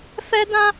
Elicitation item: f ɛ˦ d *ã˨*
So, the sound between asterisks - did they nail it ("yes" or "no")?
no